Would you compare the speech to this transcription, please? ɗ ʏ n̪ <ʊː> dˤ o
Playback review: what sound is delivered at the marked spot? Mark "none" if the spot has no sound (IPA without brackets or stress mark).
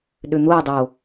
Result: ʊː